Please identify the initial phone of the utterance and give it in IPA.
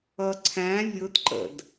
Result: ʌ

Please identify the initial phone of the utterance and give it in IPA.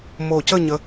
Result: m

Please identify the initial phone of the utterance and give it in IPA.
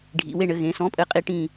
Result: ɖʱ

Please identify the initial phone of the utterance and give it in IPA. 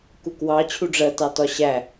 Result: k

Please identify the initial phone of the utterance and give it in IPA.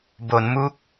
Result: b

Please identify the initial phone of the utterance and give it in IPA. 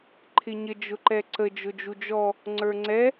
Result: ǃʰ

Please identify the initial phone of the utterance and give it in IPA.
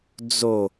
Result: d͡z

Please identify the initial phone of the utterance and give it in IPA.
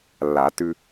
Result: lː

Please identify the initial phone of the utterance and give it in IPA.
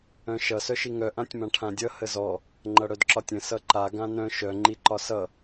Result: œ̃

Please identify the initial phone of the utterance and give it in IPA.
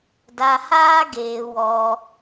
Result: d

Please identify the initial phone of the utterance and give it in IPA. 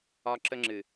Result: ɒ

